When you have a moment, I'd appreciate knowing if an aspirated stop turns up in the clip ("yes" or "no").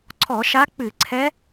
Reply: yes